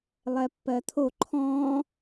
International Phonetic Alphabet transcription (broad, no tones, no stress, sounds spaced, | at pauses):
lˠ ɛ pː ɜ t̪ʰ o ǃʰ ɔ̃ː